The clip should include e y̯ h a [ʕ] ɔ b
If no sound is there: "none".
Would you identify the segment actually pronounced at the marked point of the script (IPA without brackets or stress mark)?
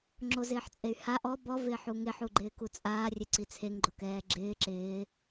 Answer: ʔ